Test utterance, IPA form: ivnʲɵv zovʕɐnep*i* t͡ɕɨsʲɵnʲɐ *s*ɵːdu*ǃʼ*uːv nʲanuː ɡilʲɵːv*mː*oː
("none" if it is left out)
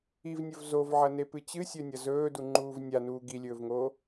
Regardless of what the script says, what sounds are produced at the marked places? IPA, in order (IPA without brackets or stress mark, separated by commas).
ɨ, z, ŋ͡ǃ, ŋ